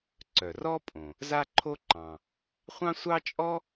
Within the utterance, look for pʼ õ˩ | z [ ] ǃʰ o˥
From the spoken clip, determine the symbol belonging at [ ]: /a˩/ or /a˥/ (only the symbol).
a˥